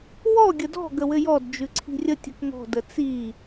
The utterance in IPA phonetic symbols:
wɔ ɡʲədɔ̤ ɡəwɘjɔd d͡ʒʉǀʰi̤rʲə tʲɘkŋɔ̤ dət͡si

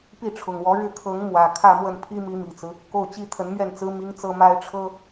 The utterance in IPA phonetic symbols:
pi˥˩ʈ͡ʂʰʊ˨˩ŋwɔ˧˥ ɻɻ̩˥˩kʰɤ˧˥ŋ mwä˨˩ kʰä˥˧mwə˥˩n pʰi˥mi˧˥mi˨˩t͡sɹ̩˦ | ko˥˩ʊ̯t͡ɕi˥ t̪ʰə˧˥nmɥɛ˥˩nt͡sɹ̩˥ mi˥ŋ t͡sɤ˥ma˥ɪ̯ʈ͡ʂʰɤ˥

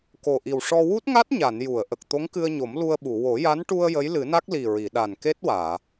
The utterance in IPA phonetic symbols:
ko˨˩ʔi˨˩wʂɔ˧ wu˦˥t̚ŋa˦˥t̚ɲa˨˩˨n ju˨˩˨ə̯ʔə˨˩k̚ t̪o˧˥ŋkɨ˧ə̯ɲo˨˩˦m lu˧ə̯ɓu˨˩˨ wo˨˩˦ja˧˥n ʈu˧ə̯ jə˧˥jlɨ˨˩˦na˦˥k̚li˨˩ ɹi˨˩˨ɗa˨˩nke˦˥t̚waː˨˩˨

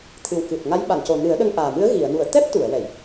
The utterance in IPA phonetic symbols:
t̪ʰɨ˨˩wkɨ˨˩t̚ ŋa˧˥j ɓa˨˩˨nco˨˩nɨ˨˩˦ə̯ ɗə˧ŋʔaː˨˩mɨ˧˥ə̯ ɣi˨˩˨ə̯nu˨˩˨ə̯ t̪ɛ˦˥p̚t̪u˨˩˨ə̯wɛ˨˩˨j

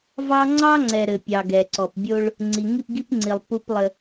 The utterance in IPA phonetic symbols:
vɑ˦ ŋ͡ǀɑ˦ŋ͡ǀɛ˨ ɾɘ˨pʲɑ˨ɡɛ˨ ǀɔ˨p bʲo˦ɭ | ŋ͡ǀi˨ ŋi˦˨pɡi˦pŋ͡ǀi˨lˠ pu˦plˠɘ˦

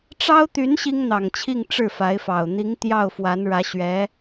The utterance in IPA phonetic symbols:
ʈ͡ʂɑ˥ʊ̯t̪y˧˥n ɕi˥ŋn̪ɑ˨˩ŋt͡ɕʰi˥˧ŋ ʈ͡ʂɻ̩˥˩fa˧˥ɪ̯fɑ˨˩ʊ̯ n̪i˧˥ŋ t̪jɑ˥˩ʊ̯fwa˧˥n ɻä˧˥ɕɥɛ˧˥

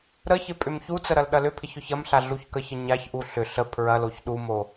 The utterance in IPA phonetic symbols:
ɾəçɪ pʼʏmçut͡sə ɾɐlɗɐlʏpʰɪç ʏçɐmɬa ɮuçkəçə ɲaçʔu ɬʏ ɬə pʰɹɐloç ɗumo

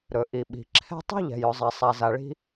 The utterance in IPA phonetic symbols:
ɾɵ˩ ʔi˩ɓi̤˩ ǁʰɛ̤˦ tˤi̤˥ʎɛ̤˩j ɵ˩zˤɛ˩sˤa˩za˩ ɭi̤˦

